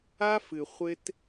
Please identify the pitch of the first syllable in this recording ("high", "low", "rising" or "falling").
high